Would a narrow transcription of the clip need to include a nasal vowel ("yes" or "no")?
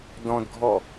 yes